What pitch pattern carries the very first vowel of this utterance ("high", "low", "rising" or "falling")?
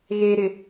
low